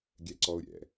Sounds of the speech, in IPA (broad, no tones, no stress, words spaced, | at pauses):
ɡʲɛǀɔʊ̯ɾʲɛ̰